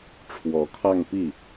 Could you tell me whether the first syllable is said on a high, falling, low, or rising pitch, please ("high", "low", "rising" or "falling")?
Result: rising